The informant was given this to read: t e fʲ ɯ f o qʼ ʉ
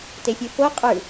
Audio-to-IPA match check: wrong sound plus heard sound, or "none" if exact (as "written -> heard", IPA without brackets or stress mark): none